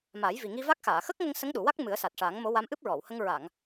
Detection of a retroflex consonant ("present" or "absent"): present